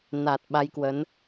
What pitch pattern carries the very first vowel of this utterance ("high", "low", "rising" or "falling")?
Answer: low